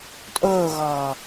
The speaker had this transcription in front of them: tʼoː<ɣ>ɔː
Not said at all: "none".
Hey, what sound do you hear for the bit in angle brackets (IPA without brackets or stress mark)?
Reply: ɣ